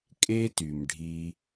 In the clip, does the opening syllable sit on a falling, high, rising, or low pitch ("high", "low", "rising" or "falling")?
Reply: high